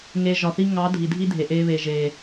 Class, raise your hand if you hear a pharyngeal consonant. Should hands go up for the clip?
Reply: no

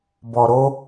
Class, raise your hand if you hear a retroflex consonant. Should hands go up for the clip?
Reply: no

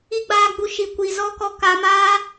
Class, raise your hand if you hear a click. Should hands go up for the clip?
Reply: no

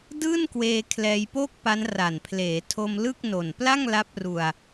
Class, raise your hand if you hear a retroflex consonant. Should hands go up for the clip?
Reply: no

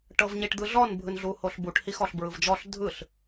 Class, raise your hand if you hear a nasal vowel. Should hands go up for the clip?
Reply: no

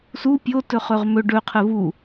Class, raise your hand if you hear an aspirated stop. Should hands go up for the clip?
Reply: yes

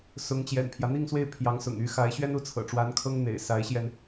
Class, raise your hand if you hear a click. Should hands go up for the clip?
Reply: no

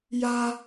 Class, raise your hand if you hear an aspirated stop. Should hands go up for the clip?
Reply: no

